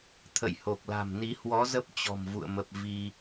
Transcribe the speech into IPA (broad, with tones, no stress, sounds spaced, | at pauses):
t̪ʰ ə̰˧˨ j h o˨˩ k̚ l a̤˨˩ m n i˨˦ h w ɔ˨˦ z ə˦˥ p̚ t͡ɕ ɔ̤˨˩ m v ṵ˧˨ ə̯ m ə˨˩ p̚ v i˧